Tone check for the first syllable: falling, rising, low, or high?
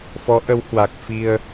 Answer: rising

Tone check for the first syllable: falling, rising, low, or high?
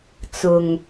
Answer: low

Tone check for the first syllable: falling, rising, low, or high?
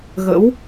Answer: rising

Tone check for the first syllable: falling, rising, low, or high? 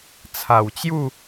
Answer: low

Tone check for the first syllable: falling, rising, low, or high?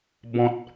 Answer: low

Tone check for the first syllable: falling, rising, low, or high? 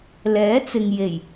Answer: rising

